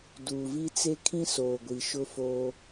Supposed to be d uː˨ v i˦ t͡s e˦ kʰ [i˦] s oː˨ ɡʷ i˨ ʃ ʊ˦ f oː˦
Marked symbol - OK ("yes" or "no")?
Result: no